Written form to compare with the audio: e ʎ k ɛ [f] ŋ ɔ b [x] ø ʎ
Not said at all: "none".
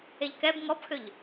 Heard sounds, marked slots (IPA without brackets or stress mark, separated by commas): b, x